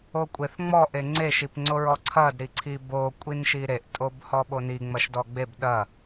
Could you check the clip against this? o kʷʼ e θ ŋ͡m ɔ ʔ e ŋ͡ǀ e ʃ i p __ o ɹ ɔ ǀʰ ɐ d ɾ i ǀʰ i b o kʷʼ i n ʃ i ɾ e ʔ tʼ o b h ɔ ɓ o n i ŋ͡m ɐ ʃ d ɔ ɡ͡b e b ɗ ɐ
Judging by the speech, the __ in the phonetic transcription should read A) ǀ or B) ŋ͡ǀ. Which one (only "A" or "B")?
B